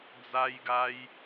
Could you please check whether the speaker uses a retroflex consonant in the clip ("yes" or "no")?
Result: no